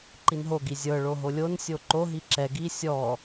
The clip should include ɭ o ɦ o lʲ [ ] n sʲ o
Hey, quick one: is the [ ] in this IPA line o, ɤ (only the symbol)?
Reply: o